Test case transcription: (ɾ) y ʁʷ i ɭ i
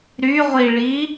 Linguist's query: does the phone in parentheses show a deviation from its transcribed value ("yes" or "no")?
no